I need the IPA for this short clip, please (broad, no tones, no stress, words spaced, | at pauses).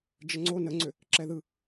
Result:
d͡ʒəŋ͡ǀo nəŋ͡ǀʏ | ǁɛðɯ